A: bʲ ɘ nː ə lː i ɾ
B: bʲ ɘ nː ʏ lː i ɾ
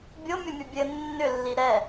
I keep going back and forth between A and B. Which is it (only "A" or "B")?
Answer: B